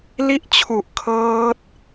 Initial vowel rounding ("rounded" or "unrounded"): unrounded